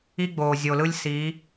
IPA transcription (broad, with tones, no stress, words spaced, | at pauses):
i˦ɡ͡boː˨zʲo˨lɯ˦lʲ si˨˦